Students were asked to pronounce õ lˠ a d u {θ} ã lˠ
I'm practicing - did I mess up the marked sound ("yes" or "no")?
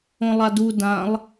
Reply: yes